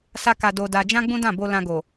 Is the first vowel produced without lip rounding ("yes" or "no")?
yes